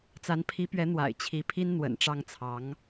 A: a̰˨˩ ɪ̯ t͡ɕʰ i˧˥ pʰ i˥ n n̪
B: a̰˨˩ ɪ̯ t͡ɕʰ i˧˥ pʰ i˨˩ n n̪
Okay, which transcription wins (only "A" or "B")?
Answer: A